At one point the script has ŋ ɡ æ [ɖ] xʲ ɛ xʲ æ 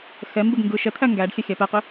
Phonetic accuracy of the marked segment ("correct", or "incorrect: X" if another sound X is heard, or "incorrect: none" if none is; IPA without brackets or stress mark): correct